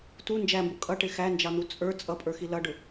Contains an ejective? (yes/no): yes